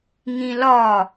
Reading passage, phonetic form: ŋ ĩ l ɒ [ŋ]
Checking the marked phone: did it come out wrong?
yes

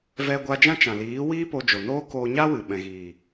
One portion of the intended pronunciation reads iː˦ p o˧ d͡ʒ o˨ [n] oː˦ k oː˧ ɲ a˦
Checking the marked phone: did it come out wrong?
no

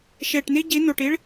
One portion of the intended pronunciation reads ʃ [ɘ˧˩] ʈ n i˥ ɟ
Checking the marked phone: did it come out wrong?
yes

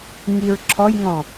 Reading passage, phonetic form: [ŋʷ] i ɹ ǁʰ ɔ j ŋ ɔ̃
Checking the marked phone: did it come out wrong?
yes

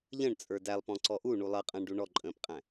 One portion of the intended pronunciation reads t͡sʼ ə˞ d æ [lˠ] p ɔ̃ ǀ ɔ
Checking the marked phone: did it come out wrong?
no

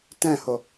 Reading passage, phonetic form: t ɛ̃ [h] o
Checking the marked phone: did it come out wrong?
no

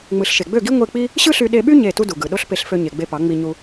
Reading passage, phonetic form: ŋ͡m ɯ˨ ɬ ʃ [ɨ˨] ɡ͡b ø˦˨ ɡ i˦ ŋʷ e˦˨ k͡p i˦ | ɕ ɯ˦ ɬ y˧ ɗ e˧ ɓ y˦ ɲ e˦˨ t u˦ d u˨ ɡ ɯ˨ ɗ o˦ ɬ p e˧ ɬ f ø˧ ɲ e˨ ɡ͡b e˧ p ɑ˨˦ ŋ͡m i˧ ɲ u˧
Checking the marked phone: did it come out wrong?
yes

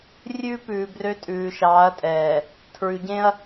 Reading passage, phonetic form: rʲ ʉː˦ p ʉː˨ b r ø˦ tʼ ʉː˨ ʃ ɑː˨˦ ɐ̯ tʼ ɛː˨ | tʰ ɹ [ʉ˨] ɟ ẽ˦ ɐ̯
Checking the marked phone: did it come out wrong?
no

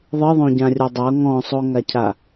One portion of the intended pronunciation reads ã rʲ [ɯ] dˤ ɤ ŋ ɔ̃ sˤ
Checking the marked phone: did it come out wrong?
yes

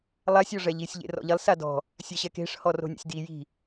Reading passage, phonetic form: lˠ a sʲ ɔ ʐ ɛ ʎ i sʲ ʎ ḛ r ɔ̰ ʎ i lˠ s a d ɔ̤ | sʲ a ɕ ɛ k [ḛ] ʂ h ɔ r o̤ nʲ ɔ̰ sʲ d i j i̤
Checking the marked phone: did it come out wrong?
yes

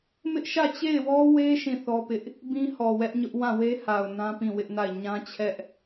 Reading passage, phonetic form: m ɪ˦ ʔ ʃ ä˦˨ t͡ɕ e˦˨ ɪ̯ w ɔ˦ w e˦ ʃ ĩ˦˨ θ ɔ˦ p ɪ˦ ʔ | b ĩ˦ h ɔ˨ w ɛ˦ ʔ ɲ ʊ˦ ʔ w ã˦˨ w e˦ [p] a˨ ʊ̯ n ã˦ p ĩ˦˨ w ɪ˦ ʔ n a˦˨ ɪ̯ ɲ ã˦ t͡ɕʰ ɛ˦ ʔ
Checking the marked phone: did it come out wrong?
yes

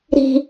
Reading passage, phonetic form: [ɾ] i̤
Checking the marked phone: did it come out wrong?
no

